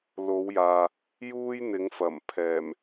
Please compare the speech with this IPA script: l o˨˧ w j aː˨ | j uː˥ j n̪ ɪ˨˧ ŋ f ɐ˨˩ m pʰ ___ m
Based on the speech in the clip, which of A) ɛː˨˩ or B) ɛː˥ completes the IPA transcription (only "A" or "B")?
A